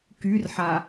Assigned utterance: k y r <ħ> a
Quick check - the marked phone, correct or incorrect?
correct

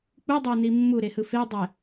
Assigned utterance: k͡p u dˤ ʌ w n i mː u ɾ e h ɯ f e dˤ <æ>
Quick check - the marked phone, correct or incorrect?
incorrect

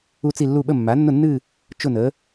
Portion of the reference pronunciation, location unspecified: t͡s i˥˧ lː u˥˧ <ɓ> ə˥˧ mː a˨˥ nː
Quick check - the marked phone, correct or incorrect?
correct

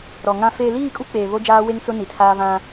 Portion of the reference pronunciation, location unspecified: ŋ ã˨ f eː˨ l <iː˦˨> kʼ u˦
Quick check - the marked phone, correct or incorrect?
correct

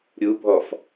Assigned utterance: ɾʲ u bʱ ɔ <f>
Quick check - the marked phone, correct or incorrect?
correct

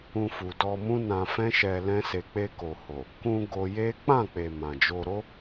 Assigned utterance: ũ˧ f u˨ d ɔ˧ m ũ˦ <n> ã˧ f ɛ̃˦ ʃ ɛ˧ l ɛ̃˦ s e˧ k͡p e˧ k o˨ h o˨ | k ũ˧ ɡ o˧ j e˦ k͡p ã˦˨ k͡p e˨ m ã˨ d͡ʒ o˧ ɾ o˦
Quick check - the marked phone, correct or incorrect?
correct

